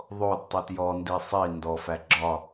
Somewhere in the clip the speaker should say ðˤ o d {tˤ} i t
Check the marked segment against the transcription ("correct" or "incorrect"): correct